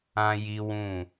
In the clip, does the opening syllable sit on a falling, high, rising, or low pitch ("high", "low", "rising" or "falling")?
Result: high